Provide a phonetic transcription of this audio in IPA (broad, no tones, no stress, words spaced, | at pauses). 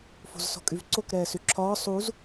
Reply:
fo̤zsɔ̤kʼyvǀok ɾɛːsyǁʰɒː sˤuz